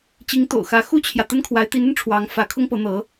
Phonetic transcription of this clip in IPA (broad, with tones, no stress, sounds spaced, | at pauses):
t͡ɕ i˧˥ ŋ t̪ o̰˨˩ ʊ̯ x ä˧˥ x u˥ t͡ɕʰ j ä˨ t̪ ə˥ n kʰ w a˧˥ ɪ̯ t̪ i˧˥ n ə˧ n ʈ͡ʂʰ w ɑ˧˥ ŋ f ä˧˥ kʰ ʊ˥ ŋ p ɤ˧˥ n̪ ɤ˧˥